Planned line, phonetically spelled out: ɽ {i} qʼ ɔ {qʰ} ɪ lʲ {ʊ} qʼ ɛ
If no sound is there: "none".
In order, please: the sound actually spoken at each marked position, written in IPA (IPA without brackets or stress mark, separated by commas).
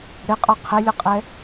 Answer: ɪ, qʰ, ʊ